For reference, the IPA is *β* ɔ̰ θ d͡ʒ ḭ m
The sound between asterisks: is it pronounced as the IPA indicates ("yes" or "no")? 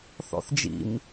no